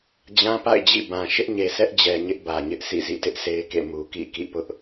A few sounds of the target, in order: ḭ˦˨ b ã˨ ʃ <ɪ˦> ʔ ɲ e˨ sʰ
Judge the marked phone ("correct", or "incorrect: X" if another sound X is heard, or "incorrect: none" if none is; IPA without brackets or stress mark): correct